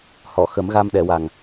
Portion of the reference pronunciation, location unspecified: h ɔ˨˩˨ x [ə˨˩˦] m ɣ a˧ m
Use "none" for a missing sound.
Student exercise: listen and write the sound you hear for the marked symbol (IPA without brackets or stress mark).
ə˨˩˦